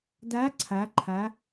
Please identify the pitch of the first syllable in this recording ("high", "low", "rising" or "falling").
rising